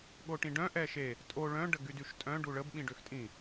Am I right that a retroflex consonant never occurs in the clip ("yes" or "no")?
no